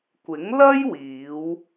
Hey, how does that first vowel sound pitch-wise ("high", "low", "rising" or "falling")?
rising